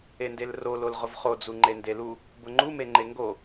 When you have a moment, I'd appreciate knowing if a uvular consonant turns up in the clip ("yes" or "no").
yes